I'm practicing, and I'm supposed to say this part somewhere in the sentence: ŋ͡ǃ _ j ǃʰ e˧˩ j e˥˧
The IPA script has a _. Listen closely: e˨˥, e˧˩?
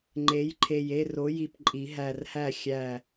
e˨˥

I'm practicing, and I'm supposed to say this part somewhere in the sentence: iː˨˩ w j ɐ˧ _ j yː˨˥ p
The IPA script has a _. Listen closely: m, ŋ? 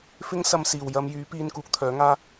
m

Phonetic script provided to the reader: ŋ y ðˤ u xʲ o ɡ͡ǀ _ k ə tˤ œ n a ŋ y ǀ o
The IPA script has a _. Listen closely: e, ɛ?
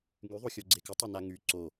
e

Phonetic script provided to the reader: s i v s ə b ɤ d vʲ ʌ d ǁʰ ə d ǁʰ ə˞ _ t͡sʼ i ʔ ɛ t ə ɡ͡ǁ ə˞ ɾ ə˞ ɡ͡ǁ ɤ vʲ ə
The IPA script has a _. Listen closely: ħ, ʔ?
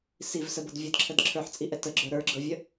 ħ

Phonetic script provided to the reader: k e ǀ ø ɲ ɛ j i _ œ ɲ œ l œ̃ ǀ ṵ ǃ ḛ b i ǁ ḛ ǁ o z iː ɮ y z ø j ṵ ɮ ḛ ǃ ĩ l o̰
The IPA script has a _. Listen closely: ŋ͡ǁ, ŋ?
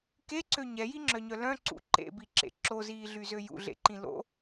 ŋ͡ǁ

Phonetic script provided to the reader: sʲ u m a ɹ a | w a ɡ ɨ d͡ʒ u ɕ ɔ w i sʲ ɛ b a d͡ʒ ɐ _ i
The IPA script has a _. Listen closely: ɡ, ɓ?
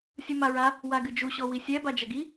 ɡ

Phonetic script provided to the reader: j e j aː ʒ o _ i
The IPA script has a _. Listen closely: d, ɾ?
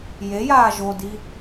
d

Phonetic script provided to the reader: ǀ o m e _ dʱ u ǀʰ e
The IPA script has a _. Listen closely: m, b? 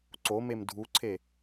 m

